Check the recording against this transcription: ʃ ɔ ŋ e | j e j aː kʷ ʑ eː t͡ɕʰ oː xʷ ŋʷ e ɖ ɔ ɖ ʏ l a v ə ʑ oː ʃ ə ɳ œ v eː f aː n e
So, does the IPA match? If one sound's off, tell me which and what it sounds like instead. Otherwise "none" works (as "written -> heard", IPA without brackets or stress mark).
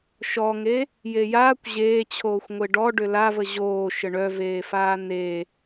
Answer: none